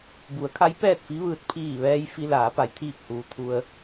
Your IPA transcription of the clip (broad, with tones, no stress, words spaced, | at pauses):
bu˩˧ə̯kʰa˧˥j pɛː˥˨t̚fi˧˥ʋɯː˧t̚ pʰiː˧˩ʋɛː˧j fi˧laː˩˧pa˩˧j t̪ʰiː˧˩k̚huː˩ t̪ʰu˧ə̯